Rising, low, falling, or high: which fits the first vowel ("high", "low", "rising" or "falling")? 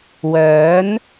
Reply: rising